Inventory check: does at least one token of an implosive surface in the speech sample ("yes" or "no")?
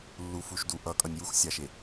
no